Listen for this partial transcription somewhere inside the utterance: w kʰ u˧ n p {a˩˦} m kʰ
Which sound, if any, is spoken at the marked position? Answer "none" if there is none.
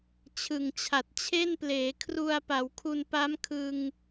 a˦˥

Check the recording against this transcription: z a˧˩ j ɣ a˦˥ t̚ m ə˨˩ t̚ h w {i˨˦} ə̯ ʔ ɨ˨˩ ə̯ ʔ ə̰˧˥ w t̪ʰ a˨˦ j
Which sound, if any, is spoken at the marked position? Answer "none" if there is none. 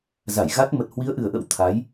i˨˦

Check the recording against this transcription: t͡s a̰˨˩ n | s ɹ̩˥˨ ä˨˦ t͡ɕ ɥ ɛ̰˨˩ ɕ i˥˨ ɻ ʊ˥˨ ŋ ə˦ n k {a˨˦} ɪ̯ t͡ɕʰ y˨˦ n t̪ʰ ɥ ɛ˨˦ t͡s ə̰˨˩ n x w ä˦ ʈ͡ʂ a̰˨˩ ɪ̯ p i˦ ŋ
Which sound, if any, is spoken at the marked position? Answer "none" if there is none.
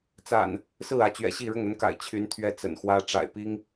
a̰˨˩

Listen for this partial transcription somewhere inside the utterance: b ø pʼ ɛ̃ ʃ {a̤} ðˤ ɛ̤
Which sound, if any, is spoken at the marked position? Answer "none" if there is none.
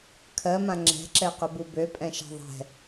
a̤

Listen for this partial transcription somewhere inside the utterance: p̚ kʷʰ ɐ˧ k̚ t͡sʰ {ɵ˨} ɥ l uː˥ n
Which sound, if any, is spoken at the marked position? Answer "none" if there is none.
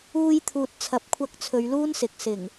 ɵ˨˧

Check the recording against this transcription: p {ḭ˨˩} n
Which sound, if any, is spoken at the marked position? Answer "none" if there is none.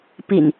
ḭ˨˩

